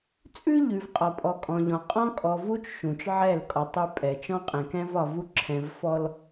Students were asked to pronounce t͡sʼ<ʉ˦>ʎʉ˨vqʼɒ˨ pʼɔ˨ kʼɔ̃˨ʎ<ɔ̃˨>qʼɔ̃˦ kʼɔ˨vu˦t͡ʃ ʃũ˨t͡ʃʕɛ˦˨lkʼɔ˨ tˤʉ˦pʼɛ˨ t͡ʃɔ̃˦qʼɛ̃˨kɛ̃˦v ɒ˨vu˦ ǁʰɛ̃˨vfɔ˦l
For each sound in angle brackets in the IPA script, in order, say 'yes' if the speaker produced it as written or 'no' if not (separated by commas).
yes, yes